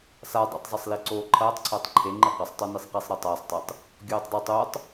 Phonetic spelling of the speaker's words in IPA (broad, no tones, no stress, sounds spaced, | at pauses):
s a dˤ ḭ tˤ zˤ ɐ sˤ l i ǀ oː ǃʰ ɐː tˤ ǀʰ ɐː tˤ ǃʰ e ŋ͡ǃ ɨ q a sˤ tˤ o n i sˤ q i sˤ ɾ ɐː tˤ aː sˤ tˤ e tˤ | ɡʲ oː tˤ dˤ e tˤ o tˤ